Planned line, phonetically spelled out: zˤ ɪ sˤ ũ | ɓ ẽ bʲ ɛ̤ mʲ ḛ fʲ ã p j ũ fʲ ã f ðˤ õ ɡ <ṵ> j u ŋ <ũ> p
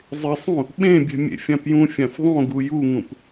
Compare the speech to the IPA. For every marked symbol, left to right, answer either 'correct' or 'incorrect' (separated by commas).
incorrect, correct